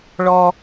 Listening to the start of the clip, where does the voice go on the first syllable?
high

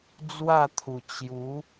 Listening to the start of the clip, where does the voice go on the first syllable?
falling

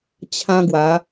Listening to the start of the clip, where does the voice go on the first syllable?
high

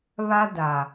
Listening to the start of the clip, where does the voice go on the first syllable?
high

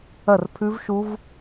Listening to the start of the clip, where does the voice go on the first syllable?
falling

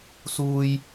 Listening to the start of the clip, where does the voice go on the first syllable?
high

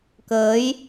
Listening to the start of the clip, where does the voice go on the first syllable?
rising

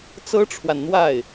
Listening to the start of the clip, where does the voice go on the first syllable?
high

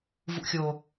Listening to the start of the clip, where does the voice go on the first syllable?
low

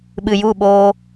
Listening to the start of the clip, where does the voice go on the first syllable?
low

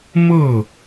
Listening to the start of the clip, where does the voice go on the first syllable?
falling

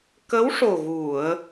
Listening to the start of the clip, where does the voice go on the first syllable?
rising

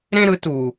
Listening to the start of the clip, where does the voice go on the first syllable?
high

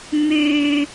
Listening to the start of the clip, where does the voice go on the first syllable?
low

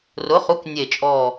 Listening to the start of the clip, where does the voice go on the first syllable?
rising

